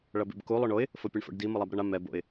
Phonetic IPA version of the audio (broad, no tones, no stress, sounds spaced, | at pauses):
ɭ ʌ b ḛ b k u lˠ o ɳ o ɪ̯ | f o pʲ e ɳ f o̰ ɖ d i m ɯ lˠ a b ɾ ʌ ɳ a m ɛ b o̰ ɪ̯